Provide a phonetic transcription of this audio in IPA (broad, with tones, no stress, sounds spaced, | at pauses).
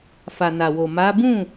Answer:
f a˨ n a˨ w o˨ m a˨˦ b ũ˦˨